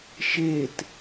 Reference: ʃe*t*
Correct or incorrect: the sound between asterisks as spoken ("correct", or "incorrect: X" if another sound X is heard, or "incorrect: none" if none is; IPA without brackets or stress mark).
correct